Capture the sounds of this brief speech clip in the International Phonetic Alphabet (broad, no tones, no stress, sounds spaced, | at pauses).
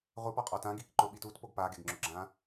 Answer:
ʁʷ ɪ p ɔ qʼ ɔ t ã ɡ i k ǃ ʊ ɓ i t u t p o ɡ p a ɡ e ɡ ŋ͡ǁ ʊ ɡ͡ǁ ã